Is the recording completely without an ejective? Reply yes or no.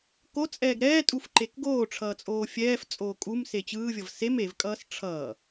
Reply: no